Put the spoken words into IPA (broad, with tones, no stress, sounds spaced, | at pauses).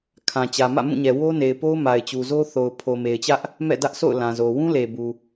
kʰ ã˨ t͡ɕ ä˨ m ä̰˦˨ m ũ˦˨ ɲ ɛ˨ w o˦ n e˨ ɪ̯ p o˦ ʊ̯ m a˨ ɪ̯ t͡ɕ u˨ z o˦ θ o˨ ʊ̯ pʰ o˨ m e˨ ɪ̯ t͡ɕ ä˦ ʔ | m ɛ̰˦˨ d ä˦ ʔ s o̰˦˨ ʊ̯ l ã˨ z o˨ w ũ˦ l e˨ b u˨